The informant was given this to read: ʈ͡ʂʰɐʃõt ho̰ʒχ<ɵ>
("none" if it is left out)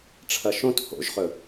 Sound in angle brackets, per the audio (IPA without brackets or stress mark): ɵ